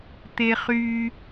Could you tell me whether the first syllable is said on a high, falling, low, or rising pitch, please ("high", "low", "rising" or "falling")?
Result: low